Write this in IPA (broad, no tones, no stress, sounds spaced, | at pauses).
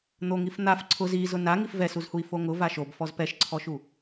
n̪ o ŋ i f n̪ a f ǀʰ ʊ z i z ʊ n a ŋ i f v ɛ s u z h u i̯ f o ŋ ʊ v a ʃ o b f ɔ z p ɛ ʃ ǀʰ ɔ ʃ u